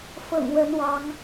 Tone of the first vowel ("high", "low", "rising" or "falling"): low